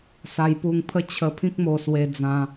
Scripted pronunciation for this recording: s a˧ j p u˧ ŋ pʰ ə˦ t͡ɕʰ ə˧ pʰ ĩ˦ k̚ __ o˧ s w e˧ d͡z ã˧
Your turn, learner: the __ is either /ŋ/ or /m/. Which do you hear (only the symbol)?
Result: m